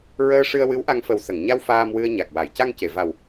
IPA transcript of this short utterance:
ɹ əː˧ ʂ ɨ˧ ə̯ w ɨ˧˥ w ʔ a˧ ŋ f ə˨˩ w s ə˨˩˨ ŋ ɲ a˧ w f aː˧ m w ɨ˧ ə̯ ɲ a˨˩ k̚ w a˨˩˨ j c a˧ ŋ c e˨˩˨ v a˨˩ w

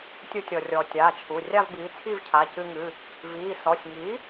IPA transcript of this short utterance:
tʲ u˧ tʲ ɔ˩ rʲ ɔː˩ tʲ aː˩˧˩ t͡ʃʰ u˩˧˩ rʲ a˥˧ v b iː˩˥ t͡sʰ i˥˧ v cʰ a˩˧˩ c ɨ˧ ŋ ɨ˩˧˩ | v iː˩˧˩ s ɔ˩˧˩ sʲ ŋ i˩˥

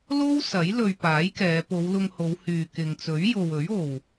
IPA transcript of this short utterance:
l o˥ w s ɐ˨˥ j l ɵ˧ ɥ p aː˨˥ j k ɛː˨˧ p o˨˧ w l ʊ˧ ŋ h o˨˧ w h yː˨ k ɪ˨ ŋ t͡s ɵ˨˥ ɥ j o˨ w ɵ˨˥ ɥ o˨ w

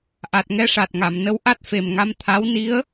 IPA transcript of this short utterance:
ʔ a˨˩ t̚ ŋ ɛ˧˥ ʂ a˨˩ t̚ ŋ a˨˩˨ m n ə˧˥ w ʔ a˦˥ t̚ f e˨˩ m ŋ a˧˥ m t̪ʰ a˧˥ w n i˧˥ ə̯

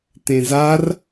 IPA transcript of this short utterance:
t ẽ z a r

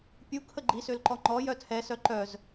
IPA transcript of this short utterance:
pʲ u kʰ ə ɡ͡ǃ i s ø l ǃ ɔ ŋ͡ǃ ɔ j œ tʰ ɛ s œ ǃ œ z

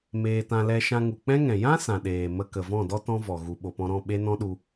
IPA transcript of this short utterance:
m eː˧ t ã˧ l ɛ˧ ʃ ã˧ ŋ u˨ k͡p ɛ̃˦ ŋ ɛ̃˨ j ã˦ s ã˨ ɗ eː˨ m ə˧ k ə˨ v ɔ̃˦˨ d ɔ˦ t ɔ̃˦ v ɔ˨ ɣ u˨ ɓ o˨ p ɔ̃˧ ɾ ɔ̃˦˨ ɓ e˦ n ɔ̃˦ ɗ u˧

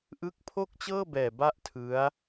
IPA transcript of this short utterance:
ʔ ɯ˦˥ k̚ pʰ o˥˩ k̚ t͡ɕ ɤː˥˩ b ɛː˨˩ b a˥˩ ʔ tʰ ɯ˦˥ a̯

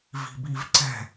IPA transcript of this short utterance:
v i̤ b i v ǀ ɛ̤

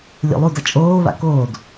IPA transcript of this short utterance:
lʲ o̰ lˠ u d ʌ t͡ʃʼ oː β a̰ k oː d

